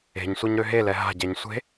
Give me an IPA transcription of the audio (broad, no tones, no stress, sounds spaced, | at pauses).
e̤ ɲ sʷ a ɲ ɾ ø ɦ e l ɛ ɦ a̤ ɟ ɛ ɲ sʷ e̤